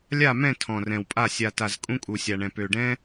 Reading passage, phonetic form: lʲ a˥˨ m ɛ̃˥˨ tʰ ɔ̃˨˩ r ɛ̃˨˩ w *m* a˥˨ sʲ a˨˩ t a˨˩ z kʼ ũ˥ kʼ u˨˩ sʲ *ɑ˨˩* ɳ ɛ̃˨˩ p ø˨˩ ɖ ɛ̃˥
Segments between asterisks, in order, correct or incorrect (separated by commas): incorrect, incorrect